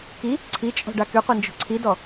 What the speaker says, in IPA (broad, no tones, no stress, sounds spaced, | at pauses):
k i | ǀʰ i t͡ʃʼ ɔ̤ ɖ a k y qʷ i n d͡ʒ o̤ ǀʰ i d ɔ